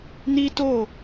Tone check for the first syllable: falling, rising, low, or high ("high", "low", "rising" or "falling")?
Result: high